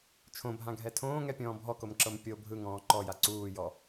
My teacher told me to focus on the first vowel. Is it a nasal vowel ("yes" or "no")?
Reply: yes